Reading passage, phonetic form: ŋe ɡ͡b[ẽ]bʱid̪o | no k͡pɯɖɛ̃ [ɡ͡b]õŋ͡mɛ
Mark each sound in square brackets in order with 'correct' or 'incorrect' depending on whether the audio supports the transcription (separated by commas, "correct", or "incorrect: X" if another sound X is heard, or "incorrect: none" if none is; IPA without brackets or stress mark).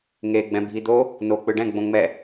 incorrect: ɛ̃, correct